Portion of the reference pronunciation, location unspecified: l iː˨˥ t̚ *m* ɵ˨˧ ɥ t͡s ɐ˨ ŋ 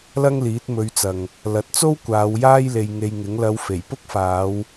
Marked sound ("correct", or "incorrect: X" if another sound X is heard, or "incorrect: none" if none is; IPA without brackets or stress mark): correct